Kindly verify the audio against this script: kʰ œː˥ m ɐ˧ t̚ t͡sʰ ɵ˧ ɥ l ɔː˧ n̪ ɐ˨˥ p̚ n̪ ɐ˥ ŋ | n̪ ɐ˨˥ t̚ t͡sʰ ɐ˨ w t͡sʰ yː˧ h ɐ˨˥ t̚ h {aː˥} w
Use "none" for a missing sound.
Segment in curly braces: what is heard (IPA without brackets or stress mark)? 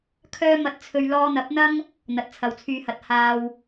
aː˥